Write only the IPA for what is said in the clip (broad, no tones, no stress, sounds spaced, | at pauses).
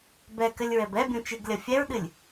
b ɛ k ɘ lʲ ɹ ɛ b ɛ bʲ ũ t͡ʃ ɨ ɡ lʲ ɐ fʲ ɛ ɹ ɗ ɨ lʲ